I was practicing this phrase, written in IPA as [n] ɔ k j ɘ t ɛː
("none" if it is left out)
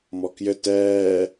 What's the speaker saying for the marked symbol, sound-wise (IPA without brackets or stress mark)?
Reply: m